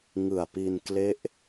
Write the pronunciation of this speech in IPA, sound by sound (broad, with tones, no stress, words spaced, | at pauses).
ŋɯ˨˩a̯pi˧n kle˦˥ʔ